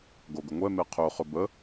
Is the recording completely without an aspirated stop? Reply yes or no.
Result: no